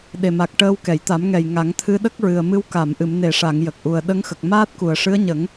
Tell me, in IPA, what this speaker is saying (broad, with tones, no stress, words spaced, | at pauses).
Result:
ɗe˨˩ma˨˩k̚ ʈəː˧wkɛ˨˩˨jt̪a˨˩˦mŋɛ˨˩j ŋa˨˩˦ŋ t̪ʰɨ˧ɗə˦˥k̚ɹɨ˨˩ə̯mɨ˧˥w ka˨˩˨mʔɨ˨˩˨mne˨˩˨ʂa˨˩˨ŋ jə˨˩k̚ʔu˨˩ə̯ ɗə˧ŋxə˨˩k̚ maː˦˥t̚ku˨˩ə̯ʂɨ˧˥ə̯ɲə˨˩˦ŋ